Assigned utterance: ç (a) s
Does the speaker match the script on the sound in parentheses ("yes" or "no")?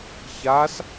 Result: yes